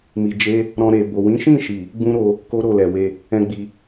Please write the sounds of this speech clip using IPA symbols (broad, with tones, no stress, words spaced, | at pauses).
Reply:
mi˨d͡ʒe˧ | ɾɔ̃˧ ɾe˨ bo˨ wĩ˨˦ʃĩ˦˨ʃi˨ | ɡ͡bũ˦ɾo˧ | ko˦ɾo˦˨lɛ˨we˧ | ɛ̃˦ɡ͡bi˧